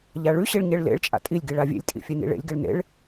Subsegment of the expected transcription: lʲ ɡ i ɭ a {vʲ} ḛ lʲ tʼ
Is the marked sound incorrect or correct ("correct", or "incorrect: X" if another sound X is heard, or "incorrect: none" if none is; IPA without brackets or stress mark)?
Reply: correct